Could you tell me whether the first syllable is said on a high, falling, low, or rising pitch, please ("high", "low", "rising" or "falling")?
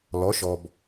rising